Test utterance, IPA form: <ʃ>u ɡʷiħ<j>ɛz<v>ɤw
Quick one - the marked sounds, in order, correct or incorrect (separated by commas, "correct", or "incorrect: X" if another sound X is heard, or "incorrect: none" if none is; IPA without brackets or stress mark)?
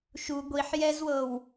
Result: correct, correct, incorrect: w